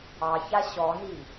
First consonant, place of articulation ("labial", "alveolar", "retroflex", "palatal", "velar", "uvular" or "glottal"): palatal